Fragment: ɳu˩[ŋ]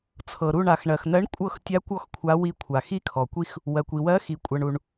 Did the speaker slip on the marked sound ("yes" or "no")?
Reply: yes